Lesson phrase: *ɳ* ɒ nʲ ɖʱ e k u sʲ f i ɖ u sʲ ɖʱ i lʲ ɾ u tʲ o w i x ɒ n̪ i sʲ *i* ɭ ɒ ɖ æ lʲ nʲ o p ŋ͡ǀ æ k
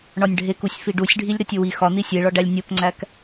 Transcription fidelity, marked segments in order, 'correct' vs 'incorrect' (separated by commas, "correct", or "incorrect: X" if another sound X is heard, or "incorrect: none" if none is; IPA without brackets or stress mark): correct, incorrect: e